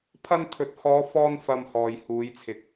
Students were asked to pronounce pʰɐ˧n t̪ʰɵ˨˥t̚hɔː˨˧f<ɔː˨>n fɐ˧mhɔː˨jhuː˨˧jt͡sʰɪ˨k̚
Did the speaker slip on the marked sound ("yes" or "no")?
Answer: yes